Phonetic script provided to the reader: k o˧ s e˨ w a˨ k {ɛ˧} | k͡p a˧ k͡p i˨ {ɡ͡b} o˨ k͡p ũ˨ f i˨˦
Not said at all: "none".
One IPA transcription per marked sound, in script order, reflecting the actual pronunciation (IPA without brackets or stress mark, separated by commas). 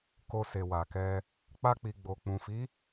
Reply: ɛ˧, ɡ͡b